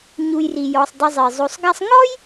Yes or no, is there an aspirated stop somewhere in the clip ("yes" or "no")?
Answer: no